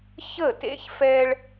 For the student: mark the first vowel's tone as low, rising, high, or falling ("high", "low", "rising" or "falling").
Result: falling